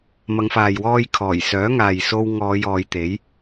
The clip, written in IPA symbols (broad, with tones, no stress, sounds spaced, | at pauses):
m ɐ˨˧ ŋ f aː˨ j w ɔː˧ j kʰ ɔː˨˩ j s œː˨˥ ŋ aː˨ j s o˧ w ŋ ɔː˨˧ j ɔː˨˧ j t̪ e˨˥ j